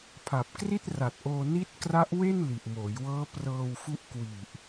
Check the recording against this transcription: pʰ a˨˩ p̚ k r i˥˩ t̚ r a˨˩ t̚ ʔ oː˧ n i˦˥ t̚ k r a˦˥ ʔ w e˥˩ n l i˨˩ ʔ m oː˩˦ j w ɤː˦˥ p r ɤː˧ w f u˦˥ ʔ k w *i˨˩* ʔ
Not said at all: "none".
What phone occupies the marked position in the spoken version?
i˨˩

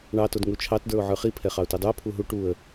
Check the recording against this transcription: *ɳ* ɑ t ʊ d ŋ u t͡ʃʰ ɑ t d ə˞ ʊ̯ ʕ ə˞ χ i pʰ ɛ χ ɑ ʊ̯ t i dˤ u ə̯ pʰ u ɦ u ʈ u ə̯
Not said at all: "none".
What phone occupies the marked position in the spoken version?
ɳ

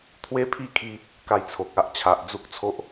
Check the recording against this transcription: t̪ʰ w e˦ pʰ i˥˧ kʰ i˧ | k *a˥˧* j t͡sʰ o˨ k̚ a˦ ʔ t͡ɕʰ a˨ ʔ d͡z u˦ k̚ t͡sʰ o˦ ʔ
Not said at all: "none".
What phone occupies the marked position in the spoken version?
a˥˧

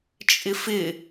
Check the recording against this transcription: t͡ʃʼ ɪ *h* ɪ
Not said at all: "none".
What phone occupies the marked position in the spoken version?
f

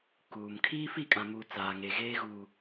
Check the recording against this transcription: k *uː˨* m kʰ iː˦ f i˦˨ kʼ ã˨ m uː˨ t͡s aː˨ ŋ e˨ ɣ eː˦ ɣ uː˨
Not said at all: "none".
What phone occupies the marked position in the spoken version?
uː˨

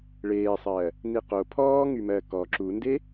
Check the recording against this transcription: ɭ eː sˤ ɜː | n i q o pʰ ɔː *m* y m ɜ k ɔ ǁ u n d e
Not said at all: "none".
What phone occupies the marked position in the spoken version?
ŋ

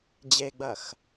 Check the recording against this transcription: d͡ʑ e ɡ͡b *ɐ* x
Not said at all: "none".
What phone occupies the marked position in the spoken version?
ɐ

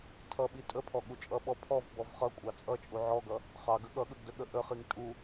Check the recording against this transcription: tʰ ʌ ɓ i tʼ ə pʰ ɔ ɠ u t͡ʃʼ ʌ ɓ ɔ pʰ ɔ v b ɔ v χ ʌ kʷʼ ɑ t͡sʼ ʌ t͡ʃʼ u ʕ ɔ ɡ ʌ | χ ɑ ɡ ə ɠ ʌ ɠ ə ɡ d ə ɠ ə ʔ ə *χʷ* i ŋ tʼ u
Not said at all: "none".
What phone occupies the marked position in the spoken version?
χ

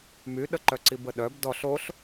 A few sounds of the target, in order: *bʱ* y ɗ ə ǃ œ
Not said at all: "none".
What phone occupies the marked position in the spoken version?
m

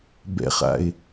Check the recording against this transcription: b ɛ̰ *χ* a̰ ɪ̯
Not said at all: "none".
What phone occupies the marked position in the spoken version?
χ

